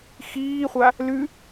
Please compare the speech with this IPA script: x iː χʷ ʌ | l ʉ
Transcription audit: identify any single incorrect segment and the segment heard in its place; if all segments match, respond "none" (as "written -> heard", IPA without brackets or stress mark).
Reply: ʌ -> a